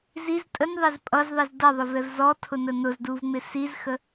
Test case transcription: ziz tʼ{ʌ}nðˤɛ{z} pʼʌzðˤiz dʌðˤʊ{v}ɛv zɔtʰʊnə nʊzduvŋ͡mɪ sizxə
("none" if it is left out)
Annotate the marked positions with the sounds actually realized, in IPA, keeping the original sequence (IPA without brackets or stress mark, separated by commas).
ə, z, v